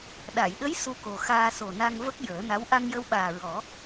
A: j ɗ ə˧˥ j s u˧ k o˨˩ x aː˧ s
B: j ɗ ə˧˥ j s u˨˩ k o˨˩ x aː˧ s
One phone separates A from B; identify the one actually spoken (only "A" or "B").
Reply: A